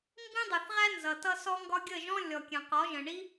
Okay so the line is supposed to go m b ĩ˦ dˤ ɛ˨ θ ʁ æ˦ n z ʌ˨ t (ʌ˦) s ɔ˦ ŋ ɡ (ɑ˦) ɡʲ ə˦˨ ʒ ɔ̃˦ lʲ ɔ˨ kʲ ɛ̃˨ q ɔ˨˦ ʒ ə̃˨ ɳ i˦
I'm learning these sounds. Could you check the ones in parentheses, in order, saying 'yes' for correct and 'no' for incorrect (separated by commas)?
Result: yes, no